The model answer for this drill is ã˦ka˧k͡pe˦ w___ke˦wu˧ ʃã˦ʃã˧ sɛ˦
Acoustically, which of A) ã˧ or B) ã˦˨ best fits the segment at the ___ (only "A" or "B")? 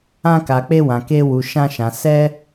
A